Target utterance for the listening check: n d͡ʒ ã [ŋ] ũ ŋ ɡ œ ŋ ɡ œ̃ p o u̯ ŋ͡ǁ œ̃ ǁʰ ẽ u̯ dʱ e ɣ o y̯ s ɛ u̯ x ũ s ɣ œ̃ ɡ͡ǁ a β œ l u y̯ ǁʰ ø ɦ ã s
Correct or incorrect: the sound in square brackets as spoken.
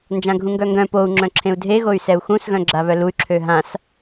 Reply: incorrect: ɡʱ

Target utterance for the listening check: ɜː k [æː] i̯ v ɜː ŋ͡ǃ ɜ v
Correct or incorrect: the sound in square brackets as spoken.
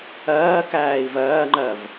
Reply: correct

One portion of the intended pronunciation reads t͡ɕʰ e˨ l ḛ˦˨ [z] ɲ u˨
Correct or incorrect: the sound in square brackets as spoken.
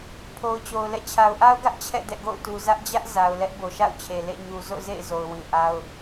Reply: incorrect: none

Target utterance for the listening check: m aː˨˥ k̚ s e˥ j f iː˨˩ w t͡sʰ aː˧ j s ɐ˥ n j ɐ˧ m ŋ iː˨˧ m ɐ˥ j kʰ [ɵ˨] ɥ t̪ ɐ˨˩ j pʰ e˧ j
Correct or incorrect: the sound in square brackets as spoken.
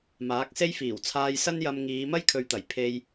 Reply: correct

